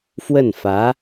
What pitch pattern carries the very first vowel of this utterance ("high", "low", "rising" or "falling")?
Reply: falling